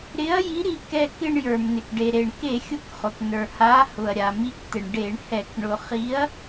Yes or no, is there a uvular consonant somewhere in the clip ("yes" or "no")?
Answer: yes